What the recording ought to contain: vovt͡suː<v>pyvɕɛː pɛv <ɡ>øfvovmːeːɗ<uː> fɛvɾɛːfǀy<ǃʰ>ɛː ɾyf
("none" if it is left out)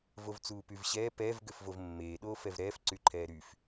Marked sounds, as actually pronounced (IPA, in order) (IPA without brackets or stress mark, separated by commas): none, ɡ, oː, ǃʰ